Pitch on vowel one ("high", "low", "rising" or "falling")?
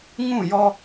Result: falling